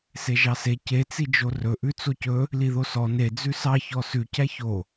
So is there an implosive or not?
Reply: no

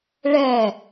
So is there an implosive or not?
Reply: no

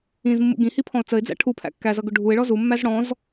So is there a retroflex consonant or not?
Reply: yes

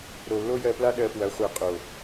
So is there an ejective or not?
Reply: yes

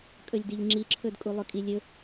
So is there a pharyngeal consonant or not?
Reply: no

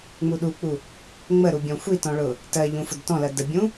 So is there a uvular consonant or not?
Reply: no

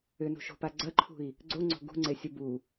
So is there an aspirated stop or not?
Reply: yes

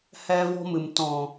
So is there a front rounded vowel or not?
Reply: no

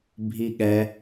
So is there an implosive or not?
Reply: yes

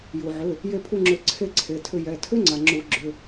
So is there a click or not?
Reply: yes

